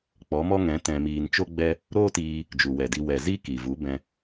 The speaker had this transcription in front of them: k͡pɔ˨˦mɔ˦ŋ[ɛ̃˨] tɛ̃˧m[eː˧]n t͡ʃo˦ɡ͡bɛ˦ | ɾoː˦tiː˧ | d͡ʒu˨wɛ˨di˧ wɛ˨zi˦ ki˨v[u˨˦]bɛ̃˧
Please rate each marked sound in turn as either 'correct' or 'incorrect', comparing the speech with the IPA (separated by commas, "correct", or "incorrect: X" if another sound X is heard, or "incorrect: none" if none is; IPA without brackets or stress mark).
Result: incorrect: ɛ̃˨˦, incorrect: iː˧, correct